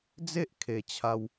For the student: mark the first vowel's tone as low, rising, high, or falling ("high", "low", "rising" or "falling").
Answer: high